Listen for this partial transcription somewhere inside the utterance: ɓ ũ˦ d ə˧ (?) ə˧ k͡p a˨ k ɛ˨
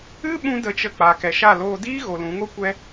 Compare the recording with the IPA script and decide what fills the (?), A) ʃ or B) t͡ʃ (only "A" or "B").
B